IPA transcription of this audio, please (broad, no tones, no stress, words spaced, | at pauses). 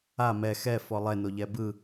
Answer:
a mɛ xɛ fɔlˠɛno ʎɛbɯ